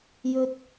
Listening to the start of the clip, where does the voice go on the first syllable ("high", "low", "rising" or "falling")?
low